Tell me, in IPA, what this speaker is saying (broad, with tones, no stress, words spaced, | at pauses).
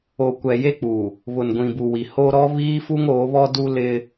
o˨kʷɛ˨je˦ k͡pu˨ | βʊ˨nɡʷĩ˨bu˨ wi˨ho˦ ɾɔ˦ βiː˦fu˦ŋ oː˨˦βɔ˦du˦ lɪ˦